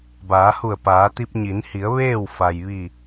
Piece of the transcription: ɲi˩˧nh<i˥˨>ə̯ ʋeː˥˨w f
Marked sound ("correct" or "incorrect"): incorrect